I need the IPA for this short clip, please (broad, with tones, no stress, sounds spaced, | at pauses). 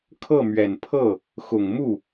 kʰ ɤ˥˩ m ɥ ɛ˨˩ n pʰ ɤ˥˩ | x ʊ˨˩ ŋ m u˥˩